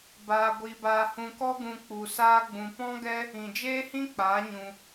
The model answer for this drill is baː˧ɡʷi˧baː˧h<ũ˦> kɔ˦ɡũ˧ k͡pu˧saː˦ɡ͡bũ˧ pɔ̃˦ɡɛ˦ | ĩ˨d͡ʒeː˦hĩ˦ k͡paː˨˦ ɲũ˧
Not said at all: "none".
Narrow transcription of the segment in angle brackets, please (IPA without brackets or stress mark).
ũ˧